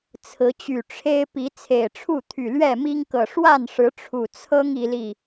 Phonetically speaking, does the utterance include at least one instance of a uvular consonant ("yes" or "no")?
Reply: no